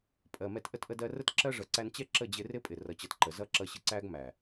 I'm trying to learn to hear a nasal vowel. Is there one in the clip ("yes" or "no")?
no